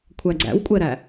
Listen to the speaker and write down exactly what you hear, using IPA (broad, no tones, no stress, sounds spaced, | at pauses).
kʷʰ æ ɡ͡ǀ æ̰ w kʷʼ ɛ ɾ æ